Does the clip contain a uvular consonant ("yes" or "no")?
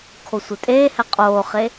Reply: yes